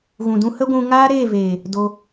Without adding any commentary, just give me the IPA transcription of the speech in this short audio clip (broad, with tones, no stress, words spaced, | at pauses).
ɣũ˨dũ˧ hə˦ɡʷũ˧ ŋaː˦ɾeː˦˨veː˨ | do˧